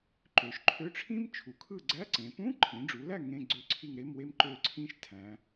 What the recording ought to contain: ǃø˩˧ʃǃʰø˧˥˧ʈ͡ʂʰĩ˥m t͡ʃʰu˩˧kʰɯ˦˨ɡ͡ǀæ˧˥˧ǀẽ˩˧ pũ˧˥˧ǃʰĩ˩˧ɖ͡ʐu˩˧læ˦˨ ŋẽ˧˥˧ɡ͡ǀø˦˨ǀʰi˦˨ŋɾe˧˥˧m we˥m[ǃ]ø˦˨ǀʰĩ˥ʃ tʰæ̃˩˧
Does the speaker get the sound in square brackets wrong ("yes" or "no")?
no